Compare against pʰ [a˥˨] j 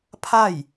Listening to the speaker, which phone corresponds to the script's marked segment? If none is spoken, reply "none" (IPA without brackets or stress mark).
a˥˨